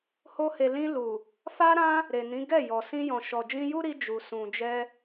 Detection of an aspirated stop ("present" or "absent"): absent